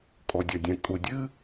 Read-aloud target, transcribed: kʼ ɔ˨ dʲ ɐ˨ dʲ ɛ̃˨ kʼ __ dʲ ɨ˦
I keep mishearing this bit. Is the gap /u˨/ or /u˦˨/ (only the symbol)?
u˨